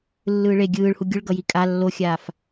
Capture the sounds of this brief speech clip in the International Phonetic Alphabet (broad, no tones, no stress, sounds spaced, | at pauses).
lː ɯː ɭ e ɡʲ ɯː ɭ h u ɡʲ ɯ ɭ ɡ ʌ j i kʼ a lː o xʲ aː f